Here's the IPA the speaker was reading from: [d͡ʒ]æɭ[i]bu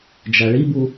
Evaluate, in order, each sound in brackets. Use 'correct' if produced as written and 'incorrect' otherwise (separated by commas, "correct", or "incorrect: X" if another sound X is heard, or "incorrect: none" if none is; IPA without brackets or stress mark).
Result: correct, correct